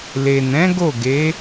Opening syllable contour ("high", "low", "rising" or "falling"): low